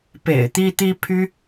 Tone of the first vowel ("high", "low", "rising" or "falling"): low